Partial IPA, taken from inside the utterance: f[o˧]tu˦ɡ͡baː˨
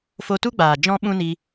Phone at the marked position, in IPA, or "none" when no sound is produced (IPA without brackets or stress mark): o˧